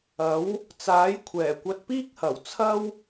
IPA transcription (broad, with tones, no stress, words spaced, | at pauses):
ɐ˨˥w | t͡saː˨˥j kʷʰɛː˨˩kʷɐ˧t̚piː˥k̚hɐ˨˩w t͡sʰɐ˥w